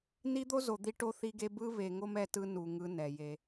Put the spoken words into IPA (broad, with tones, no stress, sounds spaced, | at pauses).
n i˦ d̪ o˦ z o˨ d̪ i˦ ʈ o˦ θ i˦ ɡ e˦ b ɯ˦ β e˨ ŋ o˦ m ɛ˦ t ɯ˦ n u˨ ŋ ɯ˦ n ɛ˨ j e˦